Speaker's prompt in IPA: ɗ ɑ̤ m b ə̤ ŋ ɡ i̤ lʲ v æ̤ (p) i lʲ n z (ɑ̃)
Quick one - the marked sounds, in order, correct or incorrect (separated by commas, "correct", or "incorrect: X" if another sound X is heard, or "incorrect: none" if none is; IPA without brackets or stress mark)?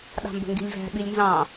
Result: incorrect: ɓ, correct